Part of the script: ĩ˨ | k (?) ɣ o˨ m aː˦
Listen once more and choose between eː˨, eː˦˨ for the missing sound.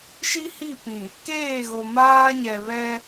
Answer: eː˦˨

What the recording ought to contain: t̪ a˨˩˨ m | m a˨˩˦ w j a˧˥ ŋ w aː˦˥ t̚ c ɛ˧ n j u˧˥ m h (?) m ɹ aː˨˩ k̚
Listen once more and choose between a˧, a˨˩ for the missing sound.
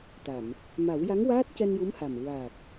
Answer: a˨˩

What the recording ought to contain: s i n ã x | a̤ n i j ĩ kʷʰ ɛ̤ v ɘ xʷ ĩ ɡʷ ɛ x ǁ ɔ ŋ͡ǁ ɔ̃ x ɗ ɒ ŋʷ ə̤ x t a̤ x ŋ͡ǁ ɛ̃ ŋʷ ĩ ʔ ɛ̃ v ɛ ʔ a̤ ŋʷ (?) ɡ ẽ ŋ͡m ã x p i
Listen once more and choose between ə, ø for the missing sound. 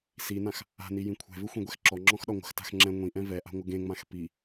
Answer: ə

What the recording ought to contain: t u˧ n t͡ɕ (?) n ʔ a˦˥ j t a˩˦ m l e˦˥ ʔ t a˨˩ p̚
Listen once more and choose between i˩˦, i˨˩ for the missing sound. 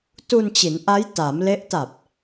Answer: i˩˦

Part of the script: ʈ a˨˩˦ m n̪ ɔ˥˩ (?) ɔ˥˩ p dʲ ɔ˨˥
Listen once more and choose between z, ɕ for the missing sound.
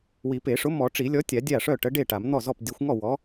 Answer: z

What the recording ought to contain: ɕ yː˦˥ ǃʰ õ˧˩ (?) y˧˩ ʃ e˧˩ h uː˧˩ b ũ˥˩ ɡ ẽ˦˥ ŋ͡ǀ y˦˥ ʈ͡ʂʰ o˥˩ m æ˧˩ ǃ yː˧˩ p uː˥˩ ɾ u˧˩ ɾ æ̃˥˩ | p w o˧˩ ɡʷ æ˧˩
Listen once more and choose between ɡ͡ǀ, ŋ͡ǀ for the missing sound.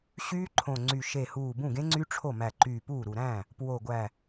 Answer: ŋ͡ǀ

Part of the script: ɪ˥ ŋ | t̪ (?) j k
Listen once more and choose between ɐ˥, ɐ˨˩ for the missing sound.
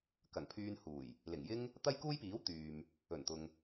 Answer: ɐ˥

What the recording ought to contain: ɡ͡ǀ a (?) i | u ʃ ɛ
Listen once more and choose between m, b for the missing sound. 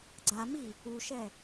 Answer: m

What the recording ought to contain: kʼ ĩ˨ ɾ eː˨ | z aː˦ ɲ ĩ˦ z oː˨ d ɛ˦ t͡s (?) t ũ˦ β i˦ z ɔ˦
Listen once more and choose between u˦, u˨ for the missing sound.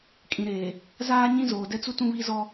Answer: u˦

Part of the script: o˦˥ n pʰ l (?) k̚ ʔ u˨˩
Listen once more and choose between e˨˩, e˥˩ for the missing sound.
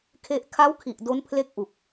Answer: e˥˩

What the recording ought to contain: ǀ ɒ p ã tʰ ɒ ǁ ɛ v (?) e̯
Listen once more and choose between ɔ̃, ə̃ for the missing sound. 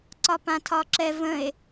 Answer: ə̃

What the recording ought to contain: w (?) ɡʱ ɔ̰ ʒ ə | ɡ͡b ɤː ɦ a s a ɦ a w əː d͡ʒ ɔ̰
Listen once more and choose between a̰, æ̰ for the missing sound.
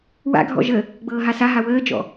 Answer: a̰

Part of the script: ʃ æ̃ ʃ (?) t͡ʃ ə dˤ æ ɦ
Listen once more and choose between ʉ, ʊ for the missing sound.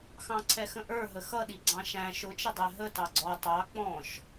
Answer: ʊ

